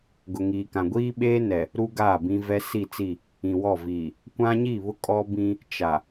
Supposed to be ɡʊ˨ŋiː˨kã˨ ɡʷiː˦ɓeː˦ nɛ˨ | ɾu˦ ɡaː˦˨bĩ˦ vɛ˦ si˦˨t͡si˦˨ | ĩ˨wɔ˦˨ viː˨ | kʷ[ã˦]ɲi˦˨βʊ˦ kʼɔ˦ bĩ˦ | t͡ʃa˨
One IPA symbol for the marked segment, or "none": ã˦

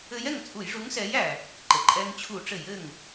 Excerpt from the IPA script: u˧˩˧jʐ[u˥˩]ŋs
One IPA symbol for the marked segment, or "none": u˨˥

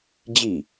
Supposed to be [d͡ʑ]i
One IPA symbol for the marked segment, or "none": d͡ʑ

